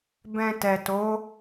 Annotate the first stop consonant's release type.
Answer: plain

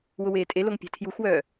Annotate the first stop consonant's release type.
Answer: ejective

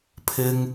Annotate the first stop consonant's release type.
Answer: aspirated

